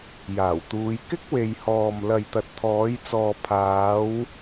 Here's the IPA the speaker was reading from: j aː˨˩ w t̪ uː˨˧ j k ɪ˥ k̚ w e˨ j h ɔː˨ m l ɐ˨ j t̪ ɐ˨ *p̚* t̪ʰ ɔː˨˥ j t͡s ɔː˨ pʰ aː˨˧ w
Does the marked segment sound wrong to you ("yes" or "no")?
yes